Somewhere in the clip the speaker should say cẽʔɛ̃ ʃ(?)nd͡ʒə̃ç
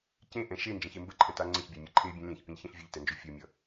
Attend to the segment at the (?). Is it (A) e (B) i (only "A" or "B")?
A